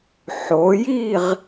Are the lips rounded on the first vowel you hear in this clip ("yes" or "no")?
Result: yes